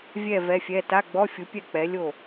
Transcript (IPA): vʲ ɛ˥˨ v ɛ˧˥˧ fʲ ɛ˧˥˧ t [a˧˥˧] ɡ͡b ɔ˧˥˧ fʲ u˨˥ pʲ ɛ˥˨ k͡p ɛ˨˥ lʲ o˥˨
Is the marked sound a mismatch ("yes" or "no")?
no